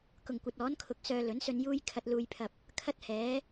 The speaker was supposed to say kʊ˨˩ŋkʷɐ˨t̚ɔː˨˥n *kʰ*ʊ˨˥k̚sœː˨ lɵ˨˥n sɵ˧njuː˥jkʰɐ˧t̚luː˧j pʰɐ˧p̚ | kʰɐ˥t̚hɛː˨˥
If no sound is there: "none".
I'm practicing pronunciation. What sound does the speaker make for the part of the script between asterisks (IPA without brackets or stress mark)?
kʰ